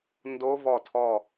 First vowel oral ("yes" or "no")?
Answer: yes